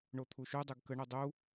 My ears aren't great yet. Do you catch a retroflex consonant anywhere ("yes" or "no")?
yes